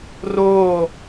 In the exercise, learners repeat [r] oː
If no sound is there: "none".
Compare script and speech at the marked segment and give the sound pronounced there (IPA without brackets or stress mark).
r